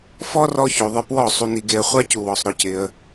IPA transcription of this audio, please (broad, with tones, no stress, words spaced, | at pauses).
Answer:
fɔ˦rɔ˧ ço˨ðˤɪ˧ pwɔ˦˨ sˤu˧ni˧ɡe˧ə̯ χʷa˦cu˨wɔ˨sˤ ɾʊ˦cɪ˧ə̯